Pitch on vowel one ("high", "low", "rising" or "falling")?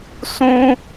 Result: high